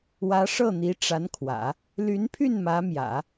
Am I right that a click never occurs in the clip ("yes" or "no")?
yes